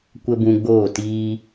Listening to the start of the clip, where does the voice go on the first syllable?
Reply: high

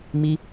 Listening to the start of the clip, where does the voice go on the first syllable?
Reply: high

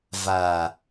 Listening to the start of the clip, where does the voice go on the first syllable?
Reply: low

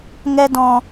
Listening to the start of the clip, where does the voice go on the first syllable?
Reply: high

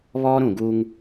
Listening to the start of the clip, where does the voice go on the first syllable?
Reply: high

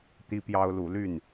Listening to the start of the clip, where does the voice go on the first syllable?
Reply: high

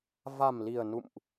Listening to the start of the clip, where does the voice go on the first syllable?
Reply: low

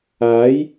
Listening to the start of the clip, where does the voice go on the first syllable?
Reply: rising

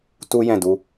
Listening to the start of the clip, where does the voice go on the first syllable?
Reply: high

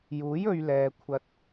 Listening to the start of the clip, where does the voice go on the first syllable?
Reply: rising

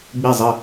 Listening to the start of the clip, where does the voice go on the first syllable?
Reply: falling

